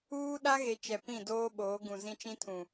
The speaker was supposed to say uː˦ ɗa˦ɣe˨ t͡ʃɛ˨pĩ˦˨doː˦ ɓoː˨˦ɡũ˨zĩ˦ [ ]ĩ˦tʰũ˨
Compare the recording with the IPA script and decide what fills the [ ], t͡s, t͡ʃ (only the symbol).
t͡ʃ